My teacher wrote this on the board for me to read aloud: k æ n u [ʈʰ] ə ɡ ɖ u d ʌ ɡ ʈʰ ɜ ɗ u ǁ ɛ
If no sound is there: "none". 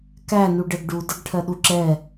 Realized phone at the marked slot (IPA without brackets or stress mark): ɖ